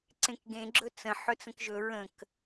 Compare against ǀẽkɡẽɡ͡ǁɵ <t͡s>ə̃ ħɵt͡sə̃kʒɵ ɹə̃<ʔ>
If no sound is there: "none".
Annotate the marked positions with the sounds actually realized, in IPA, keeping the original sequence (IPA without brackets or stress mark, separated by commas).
t͡s, k